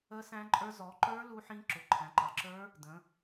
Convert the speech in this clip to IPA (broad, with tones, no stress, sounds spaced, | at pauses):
ə˦˥ s æ̃˦˥ ǃʼ ə˞˦˥ z ɔ˩˧ ǃ ə˞˦˥ l u˦˥ ħ ĩ˦˥ ǁ ʊ˩˧ ǃʰ æ̃˩˧ ǃ ɑ˩˧ ǁ ə˞˦˥ | d ə̃˩˧